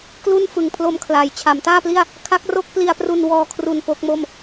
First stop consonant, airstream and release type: plain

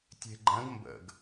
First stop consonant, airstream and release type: plain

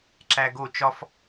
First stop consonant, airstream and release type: click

